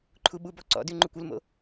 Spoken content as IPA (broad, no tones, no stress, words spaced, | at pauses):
ǃʰuɓubɔ ǀɔ̰dʉ ŋ͡ǃukʷʊlmo̰